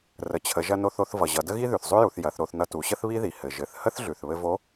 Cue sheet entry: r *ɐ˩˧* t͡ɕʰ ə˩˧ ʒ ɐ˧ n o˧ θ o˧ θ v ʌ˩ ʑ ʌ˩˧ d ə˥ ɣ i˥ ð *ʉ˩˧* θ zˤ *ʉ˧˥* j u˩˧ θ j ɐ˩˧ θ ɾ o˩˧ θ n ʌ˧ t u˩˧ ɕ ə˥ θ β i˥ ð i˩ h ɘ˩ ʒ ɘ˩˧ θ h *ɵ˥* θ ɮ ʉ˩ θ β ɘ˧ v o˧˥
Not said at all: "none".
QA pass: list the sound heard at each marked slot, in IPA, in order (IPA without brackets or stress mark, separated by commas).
ə˩˧, ʉ˩, ʉ˥, ə˥